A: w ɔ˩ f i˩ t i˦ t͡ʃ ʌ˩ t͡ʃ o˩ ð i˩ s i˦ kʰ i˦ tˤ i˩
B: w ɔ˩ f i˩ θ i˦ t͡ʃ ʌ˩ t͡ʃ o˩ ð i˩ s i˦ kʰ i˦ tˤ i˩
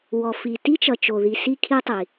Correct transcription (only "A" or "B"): A